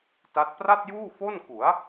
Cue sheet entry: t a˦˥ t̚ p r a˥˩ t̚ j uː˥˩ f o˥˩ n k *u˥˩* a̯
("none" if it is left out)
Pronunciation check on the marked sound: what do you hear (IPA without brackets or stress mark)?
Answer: u˩˦